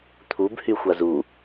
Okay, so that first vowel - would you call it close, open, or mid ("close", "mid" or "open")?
close